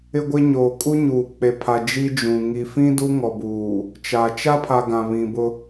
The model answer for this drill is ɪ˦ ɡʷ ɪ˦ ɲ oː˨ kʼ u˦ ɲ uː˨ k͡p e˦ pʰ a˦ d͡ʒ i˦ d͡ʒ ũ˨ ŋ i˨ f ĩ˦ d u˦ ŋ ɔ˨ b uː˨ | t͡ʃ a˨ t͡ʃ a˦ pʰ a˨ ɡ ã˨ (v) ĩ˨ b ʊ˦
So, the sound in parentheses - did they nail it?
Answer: no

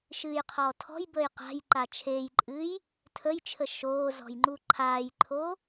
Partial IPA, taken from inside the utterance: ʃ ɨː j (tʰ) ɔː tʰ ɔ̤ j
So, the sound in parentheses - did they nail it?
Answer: no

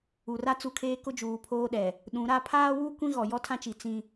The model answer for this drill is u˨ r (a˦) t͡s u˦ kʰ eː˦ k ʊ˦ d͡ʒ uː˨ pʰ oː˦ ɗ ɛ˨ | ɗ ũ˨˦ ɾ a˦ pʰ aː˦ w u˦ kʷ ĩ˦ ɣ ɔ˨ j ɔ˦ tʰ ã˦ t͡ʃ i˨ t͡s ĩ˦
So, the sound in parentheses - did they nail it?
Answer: yes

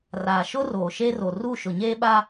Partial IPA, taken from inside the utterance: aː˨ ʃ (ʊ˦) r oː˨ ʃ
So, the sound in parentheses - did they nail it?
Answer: yes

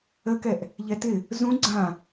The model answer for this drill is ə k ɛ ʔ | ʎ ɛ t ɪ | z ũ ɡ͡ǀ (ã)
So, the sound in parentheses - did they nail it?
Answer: yes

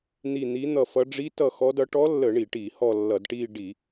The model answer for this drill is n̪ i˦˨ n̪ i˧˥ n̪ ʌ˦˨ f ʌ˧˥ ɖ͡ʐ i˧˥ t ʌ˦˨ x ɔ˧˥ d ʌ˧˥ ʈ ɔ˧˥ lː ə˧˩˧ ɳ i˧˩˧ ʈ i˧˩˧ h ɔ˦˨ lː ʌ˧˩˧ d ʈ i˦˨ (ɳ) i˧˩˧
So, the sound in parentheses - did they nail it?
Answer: no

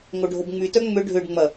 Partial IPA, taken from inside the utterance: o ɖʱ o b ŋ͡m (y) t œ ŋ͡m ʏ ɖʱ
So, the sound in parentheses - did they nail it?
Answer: yes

